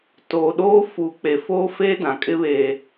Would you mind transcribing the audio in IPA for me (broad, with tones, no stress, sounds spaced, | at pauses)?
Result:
t oː˨ ɗ oː˦ f uː˨ k͡p e˨ f oː˦ f eː˦ d ã˨ kʼ ɪ˦ β eː˨